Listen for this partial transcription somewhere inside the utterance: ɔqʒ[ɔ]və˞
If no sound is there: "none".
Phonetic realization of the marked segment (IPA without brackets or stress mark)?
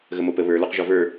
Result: ɔ